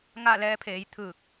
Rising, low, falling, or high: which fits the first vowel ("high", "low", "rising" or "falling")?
falling